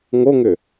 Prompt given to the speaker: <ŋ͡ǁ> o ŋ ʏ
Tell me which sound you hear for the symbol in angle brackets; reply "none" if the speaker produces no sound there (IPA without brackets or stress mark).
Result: ŋ